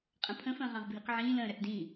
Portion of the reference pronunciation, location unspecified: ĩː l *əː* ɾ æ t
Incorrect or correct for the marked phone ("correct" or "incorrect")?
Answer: incorrect